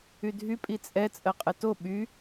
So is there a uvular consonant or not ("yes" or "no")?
yes